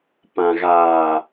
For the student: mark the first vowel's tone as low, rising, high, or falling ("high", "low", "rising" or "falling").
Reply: low